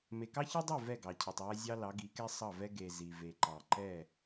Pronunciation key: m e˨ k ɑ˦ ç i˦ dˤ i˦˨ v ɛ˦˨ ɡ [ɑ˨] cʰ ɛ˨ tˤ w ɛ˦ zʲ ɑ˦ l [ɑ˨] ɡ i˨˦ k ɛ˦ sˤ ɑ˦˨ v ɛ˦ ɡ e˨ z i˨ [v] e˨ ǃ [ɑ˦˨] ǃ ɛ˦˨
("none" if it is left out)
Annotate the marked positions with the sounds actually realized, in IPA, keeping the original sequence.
ɑ˨, ɑ˨˦, v, ɑ˨

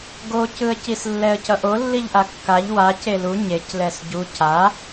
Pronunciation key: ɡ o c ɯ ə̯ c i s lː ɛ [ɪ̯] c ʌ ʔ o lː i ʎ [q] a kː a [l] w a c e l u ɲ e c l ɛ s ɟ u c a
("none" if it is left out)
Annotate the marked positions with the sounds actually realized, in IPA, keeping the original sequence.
ə̯, ʔ, ʎ

